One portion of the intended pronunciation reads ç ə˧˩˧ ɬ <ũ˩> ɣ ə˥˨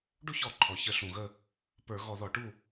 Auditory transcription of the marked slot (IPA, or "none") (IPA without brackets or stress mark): ũ˩